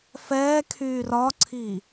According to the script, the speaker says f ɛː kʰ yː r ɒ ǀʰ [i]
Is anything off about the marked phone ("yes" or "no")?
no